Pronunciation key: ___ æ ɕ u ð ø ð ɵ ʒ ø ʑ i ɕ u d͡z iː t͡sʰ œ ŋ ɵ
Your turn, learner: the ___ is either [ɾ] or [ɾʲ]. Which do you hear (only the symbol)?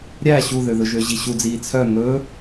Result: ɾʲ